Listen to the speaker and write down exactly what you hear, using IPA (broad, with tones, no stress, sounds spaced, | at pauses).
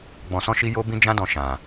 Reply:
ɡ͡b ɔ̃˨ s ɔ̃˧ ʃ i˧ j o˦ b ĩ˦ d͡ʒ ã˦ d ɔ̃˧ ʃ ã˨